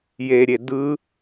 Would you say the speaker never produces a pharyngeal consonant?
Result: yes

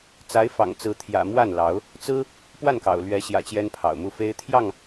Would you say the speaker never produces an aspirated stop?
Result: no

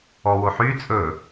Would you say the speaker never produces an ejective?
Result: no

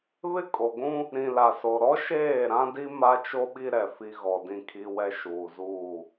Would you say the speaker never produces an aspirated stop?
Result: no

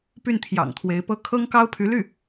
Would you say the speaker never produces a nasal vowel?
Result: yes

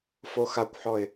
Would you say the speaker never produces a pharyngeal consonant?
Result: no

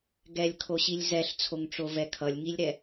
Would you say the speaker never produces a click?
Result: yes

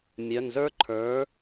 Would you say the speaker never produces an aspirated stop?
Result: no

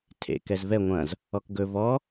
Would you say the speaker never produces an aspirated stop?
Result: no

